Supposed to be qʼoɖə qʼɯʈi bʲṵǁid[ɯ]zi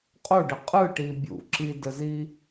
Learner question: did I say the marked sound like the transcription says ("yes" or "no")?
no